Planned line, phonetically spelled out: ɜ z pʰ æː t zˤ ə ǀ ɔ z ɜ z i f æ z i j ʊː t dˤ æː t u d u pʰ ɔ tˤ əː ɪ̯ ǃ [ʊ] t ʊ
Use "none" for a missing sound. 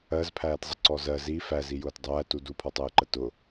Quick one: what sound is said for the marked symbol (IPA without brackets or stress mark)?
ə